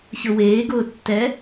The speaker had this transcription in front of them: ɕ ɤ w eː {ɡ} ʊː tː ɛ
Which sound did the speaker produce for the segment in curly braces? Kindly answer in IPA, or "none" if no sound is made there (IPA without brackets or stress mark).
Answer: ɡ